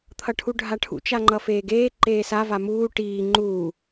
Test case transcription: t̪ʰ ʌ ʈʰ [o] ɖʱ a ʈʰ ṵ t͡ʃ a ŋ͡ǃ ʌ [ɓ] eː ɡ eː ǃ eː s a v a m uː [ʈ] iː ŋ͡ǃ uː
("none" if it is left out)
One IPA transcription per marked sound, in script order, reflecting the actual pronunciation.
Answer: u, f, ʈ

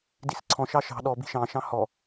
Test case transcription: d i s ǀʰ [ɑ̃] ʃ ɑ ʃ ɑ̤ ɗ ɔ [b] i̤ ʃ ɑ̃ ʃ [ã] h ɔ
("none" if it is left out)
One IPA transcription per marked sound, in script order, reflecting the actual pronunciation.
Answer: ɔ̃, b, ɑ̃

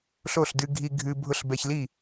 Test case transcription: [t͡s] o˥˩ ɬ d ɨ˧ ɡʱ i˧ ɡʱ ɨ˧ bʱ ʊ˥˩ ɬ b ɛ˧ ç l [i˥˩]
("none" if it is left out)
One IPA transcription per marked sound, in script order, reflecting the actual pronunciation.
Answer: ɬ, i˥˩

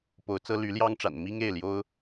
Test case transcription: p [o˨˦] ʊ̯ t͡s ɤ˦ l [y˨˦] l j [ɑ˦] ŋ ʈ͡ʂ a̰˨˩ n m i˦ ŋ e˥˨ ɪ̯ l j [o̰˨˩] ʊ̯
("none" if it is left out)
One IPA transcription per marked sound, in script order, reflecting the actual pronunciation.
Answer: o˨˦, y˨˦, ɑ˦, o˦

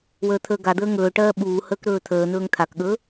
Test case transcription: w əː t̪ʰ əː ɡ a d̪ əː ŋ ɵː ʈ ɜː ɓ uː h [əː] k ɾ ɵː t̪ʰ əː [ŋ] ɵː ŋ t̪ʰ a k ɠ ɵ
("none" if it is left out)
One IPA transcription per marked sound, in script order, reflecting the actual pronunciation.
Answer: əː, n̪

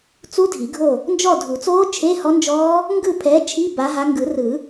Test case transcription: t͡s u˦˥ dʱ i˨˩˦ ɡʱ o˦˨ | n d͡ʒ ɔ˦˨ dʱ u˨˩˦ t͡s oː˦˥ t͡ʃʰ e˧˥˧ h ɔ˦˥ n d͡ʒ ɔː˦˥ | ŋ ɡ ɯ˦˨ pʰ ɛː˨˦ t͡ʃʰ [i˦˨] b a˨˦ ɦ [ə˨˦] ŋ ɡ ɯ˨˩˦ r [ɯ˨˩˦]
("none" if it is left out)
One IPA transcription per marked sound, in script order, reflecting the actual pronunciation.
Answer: i˧˥˧, a˨˦, ɯ˨˩˦

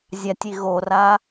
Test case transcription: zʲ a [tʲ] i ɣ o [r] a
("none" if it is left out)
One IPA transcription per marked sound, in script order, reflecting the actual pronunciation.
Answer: tʲ, r

